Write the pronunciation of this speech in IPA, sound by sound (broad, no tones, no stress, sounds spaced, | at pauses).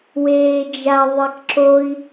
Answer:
w eː d͡ʒ a ðˤ e k ǁ o i̯